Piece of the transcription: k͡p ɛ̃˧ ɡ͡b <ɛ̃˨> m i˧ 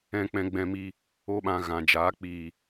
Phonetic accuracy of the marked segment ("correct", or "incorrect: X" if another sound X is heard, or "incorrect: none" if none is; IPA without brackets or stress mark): incorrect: ɛ̃˧